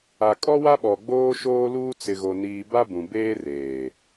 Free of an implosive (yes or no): no